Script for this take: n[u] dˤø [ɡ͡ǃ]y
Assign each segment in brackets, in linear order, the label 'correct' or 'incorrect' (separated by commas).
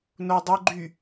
incorrect, correct